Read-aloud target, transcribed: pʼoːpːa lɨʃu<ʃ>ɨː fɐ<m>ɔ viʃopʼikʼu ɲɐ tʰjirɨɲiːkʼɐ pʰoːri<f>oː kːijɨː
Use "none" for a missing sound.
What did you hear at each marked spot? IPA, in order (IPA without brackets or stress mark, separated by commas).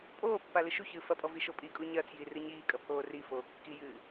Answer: ç, pʼ, f